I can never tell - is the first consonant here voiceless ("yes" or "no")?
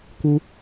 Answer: yes